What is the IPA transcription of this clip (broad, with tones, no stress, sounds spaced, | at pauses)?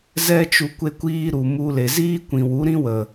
z ɛ˦ t͡ʃ u˧ kʷ e˧ kʷ iː˧ ɾ u˨ m u˧ l e˨ z iː˦ kʷ ĩ˨ w u˨˦ ɾ ĩ˦ w ə˨